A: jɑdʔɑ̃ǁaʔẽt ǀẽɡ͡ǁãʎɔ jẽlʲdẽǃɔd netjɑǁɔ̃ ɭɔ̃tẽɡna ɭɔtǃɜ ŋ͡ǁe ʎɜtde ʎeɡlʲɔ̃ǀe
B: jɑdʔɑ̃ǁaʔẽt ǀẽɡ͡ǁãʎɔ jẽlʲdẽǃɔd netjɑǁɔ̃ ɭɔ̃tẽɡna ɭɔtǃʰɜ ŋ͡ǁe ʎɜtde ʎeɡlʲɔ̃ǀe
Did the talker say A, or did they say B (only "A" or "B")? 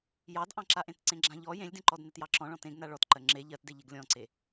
A